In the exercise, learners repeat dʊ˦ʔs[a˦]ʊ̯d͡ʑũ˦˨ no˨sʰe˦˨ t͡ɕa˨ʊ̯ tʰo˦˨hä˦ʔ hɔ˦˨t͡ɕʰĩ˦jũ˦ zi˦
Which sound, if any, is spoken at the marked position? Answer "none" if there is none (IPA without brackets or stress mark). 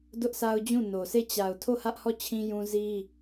a˦